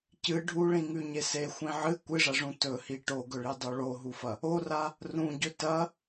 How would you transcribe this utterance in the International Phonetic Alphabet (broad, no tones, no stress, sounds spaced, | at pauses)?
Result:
c ɨ ɖʱ u ɭ ĩ ŋ ʉ ɲ e s e xʷ ĩ ʕ ɨ kʷ ɨ ʐ ɐ ʐ ũ t ɵ h i ʈ o ɡ ɵ ɭ i dˤ o ɭ o ɦ u f ɐ | o r a | r ũ ɟ ɵ t ɐ